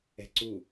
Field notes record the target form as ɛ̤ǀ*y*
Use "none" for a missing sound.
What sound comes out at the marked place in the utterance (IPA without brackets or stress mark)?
u